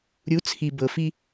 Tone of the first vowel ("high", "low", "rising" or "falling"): rising